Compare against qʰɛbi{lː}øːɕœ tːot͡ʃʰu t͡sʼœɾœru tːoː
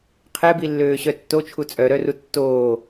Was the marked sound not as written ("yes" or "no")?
no